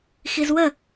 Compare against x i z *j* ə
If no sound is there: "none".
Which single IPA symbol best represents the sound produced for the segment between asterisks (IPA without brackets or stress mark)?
w